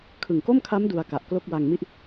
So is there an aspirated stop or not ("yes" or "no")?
yes